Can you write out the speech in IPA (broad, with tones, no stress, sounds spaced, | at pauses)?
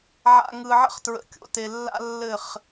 ʕ a̰˨ ŋ ɯ˨ ʕ ə̰˧ χ t ɹ ə̰˨ kʲ o̰˨ t e˨ lː a̰˦ lː ɘ˦˨ χ